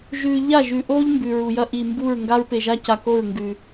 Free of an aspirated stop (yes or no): yes